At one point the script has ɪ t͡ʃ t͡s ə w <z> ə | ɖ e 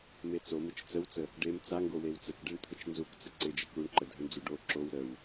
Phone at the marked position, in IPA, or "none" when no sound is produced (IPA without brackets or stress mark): t͡s